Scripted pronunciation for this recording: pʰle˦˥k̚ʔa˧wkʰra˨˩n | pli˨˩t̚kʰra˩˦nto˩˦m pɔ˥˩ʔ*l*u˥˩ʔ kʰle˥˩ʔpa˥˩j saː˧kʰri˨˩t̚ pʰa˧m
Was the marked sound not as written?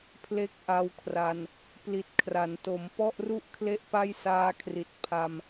yes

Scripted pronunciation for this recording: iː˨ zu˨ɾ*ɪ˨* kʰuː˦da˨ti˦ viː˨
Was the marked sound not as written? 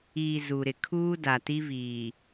no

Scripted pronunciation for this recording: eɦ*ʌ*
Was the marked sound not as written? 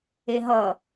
no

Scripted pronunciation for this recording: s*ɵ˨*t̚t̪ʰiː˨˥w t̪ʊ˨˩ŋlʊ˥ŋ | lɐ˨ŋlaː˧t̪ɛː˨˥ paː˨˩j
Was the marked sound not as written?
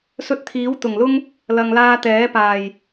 yes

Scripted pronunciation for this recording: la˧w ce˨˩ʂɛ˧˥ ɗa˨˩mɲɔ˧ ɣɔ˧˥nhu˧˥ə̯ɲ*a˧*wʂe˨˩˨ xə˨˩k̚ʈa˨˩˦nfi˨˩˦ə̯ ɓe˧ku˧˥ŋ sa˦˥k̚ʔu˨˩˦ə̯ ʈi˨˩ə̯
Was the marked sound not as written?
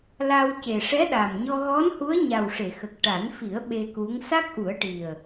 yes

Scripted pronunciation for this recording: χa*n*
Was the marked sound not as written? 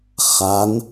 no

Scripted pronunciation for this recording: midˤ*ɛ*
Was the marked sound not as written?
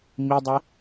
no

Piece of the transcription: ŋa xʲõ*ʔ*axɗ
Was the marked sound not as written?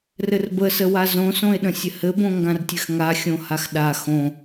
yes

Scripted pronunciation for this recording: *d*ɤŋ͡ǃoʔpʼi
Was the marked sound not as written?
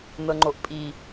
yes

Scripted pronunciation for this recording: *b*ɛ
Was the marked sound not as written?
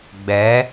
yes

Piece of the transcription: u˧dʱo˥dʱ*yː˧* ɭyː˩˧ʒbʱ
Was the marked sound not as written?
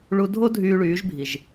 no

